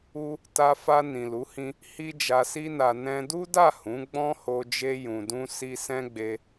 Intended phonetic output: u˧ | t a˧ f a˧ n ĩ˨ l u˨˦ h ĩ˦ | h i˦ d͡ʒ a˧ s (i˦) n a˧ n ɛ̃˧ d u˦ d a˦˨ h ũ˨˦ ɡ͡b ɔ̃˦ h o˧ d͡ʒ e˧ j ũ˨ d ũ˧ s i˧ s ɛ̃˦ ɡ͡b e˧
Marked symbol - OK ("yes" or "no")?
yes